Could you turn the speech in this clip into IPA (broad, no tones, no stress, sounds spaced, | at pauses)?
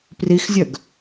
p r i x zʲ œ ɡ